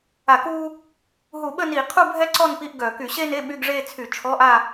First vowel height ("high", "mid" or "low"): low